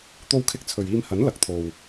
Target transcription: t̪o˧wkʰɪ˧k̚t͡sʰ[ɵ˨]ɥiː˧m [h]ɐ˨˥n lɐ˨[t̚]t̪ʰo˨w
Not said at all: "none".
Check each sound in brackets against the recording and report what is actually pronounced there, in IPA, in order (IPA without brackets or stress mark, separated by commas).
ɵ˨, h, k̚